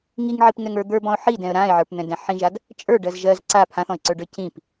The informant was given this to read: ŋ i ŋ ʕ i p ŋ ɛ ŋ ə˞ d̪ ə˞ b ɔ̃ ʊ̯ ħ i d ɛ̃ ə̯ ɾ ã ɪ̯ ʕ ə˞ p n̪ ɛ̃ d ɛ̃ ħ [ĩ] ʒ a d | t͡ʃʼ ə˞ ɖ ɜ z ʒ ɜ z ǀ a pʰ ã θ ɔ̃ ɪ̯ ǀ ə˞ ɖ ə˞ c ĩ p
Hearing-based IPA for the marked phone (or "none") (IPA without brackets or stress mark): ĩ